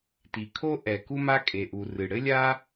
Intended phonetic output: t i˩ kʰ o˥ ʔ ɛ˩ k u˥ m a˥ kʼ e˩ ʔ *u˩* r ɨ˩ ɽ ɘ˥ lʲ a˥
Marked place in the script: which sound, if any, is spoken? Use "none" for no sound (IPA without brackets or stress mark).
u˩